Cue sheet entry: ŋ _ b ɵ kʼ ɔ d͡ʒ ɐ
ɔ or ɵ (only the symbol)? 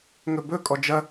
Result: ɵ